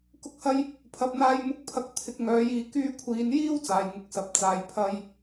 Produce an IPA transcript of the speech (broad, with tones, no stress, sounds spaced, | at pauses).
k ʊ˥ k̚ h ɐ˥ j | pʰ ɐ˧ p̚ n̪ aː˥ j m ʊ˥ k̚ pʰ ɐ˧ k̚ t̪ʰ ɪ˨˥ k̚ ŋ œː˨˥ j iː˧ k yː˧ kʷʰ iː˨˧ n j iː˥ w t͡s aː˨˧ j ŋ ʊ˧ k̚ s ɐ˨˥ p̚ t͡s aː˨˧ j pʰ ɐ˥ j